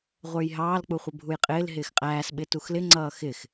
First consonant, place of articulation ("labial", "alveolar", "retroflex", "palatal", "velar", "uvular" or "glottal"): uvular